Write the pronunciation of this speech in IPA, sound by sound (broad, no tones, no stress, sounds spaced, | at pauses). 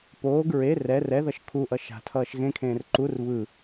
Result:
p oː ɡ ɹ e r ɛ r ɛ ð ʌ ʃ kʰ u ʔ ʌ ʃ a̤ tʰ ʌː ʃ ɣ ẽ kʰ ẽː r ǃ u r β ɯ